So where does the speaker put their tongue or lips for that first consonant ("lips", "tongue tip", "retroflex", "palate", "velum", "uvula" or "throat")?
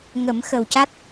velum